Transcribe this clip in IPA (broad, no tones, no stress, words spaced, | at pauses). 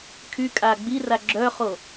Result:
kʰykʼa ɡ͡bira ɡ͡ǁœχo